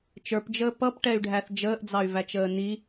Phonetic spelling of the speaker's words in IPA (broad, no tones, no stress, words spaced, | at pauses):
t͡ʃə˞pd͡ʒəː pʌpʈɛy̯ɖʱæθ d͡ʒəːʔd͡zɑy̯væt͡ʃəː ni